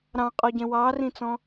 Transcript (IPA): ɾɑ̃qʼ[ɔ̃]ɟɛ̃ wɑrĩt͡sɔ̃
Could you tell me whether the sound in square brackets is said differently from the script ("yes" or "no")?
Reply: yes